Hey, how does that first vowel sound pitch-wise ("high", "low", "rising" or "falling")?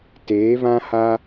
rising